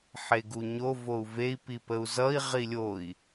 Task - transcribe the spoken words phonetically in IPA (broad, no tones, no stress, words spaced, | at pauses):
ħeɡuɲo vou̯vei̯ pipəu̯zʌi̯ ʁilʲoi̯